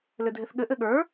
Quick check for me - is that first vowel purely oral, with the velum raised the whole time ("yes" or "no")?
yes